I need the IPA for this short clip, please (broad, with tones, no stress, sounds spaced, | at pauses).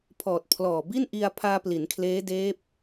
pʰ ɔː˨˩ t̚ pʰ l ɔː˨˩ b i˥˩ n ʔ i˧ a̯ pʰ aː˧ p l i˩˦ n kʰ l eː˦˥ d eː˦˥ p̚